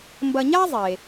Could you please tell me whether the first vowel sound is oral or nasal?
oral